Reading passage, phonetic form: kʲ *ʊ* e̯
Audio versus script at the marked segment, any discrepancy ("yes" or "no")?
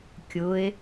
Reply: no